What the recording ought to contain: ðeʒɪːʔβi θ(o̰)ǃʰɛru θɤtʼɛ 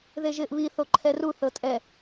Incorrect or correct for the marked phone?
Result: incorrect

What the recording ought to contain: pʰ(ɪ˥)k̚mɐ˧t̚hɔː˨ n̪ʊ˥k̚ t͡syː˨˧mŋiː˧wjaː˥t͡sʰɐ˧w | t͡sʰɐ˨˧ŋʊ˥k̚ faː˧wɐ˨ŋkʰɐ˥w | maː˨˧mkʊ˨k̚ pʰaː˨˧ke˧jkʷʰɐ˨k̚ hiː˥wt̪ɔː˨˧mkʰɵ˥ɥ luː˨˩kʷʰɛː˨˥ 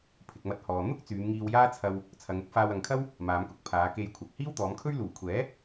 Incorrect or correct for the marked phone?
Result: incorrect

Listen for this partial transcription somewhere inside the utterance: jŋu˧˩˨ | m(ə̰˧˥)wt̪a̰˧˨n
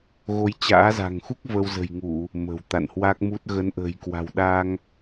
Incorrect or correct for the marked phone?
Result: incorrect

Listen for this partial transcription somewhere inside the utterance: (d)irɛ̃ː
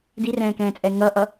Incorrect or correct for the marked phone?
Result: correct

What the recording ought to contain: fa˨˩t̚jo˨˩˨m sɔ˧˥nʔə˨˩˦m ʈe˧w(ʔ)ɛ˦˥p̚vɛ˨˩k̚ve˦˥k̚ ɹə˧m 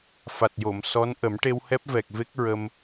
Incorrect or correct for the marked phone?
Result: incorrect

